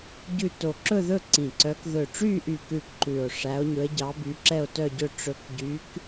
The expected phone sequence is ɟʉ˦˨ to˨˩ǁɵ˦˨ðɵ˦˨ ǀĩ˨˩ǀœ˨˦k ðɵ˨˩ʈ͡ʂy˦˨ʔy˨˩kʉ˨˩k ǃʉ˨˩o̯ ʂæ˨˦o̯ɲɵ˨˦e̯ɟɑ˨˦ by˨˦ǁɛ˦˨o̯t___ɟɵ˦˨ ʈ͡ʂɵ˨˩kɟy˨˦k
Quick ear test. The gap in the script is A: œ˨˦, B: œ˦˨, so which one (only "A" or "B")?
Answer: B